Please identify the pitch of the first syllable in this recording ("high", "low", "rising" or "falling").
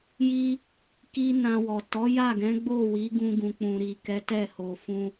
high